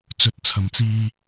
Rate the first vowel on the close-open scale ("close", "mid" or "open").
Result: mid